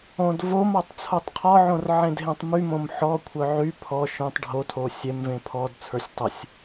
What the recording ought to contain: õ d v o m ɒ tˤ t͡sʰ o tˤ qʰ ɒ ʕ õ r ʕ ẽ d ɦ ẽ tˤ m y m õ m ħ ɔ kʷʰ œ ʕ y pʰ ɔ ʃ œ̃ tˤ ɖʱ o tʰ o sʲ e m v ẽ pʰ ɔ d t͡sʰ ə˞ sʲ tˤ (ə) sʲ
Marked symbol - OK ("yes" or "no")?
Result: yes